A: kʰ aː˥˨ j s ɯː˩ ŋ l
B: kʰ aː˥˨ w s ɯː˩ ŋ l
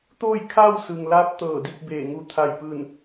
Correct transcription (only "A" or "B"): B